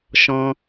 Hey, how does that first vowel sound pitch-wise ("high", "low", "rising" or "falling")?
high